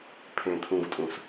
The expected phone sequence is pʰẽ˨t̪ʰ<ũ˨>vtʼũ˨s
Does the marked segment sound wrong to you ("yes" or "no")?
no